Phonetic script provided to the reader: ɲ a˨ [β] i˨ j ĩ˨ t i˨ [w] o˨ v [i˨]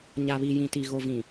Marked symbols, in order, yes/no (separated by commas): yes, no, no